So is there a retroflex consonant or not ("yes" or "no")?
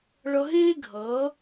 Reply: yes